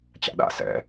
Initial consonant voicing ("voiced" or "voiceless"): voiceless